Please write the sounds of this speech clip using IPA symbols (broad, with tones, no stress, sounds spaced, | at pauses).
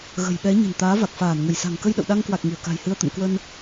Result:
ɣ ə̤˨˩ j ɓ ɛ˨˦ ɲ ə̤˨˩ n t̪ aː˨˦ v a˨˩ k̚ f aː˧˩ n ŋ ə˧˩ j s a̤˨˩ ŋ k ə˧ j ɗ ə̰˧˨ w ɗ a˧ ŋ k w a˨˩ k̚ ŋ i˧˩ ə̯ k a̤˨˩ j h ɨ˧ ə̯ t̪ ə̰˧˨ m k w ə˧ n